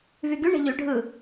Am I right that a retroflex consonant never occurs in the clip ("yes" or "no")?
no